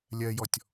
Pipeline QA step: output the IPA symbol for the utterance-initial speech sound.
lʲ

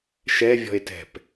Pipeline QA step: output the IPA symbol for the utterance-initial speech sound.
ʃ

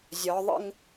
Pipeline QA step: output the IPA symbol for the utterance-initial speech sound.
zʲ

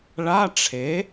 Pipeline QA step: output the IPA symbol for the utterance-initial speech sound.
ɭ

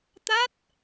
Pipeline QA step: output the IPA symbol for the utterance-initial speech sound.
t̪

